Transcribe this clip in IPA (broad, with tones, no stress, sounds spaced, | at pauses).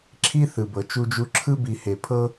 ǁʰ i˥ θ ɯ˩ b ɤ˩ t͡ʃ u˦ d͡ʒ u˦ ǁʰ ɯ˥ b i˨ h e˩ pʰ ɤ˥